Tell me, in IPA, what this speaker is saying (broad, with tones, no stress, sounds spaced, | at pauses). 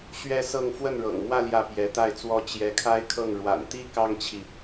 ɕ ɥ ɛ˥ s ɤ˥˧ ŋ f w ə˥˩ n ɻ ɤ̰˨˩ ŋ m w ä˥˧ l j ä˥˩ p j ɛ˧˥ t̪ a˥˩ ɪ̯ t͡s w ɔ˥ t͡ɕ j ɛ˧˥ kʰ a˥ ɪ̯ kʰ ɤ˥˩ ŋ ɻ w a̰˨˩ n t̪ i˥ k ɑ˥ ŋ t͡ɕʰ i˨